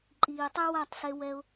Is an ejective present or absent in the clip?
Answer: present